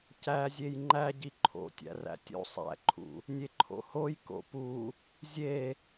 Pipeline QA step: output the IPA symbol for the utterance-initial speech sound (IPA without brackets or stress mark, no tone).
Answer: c